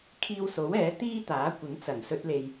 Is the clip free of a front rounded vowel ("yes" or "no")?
yes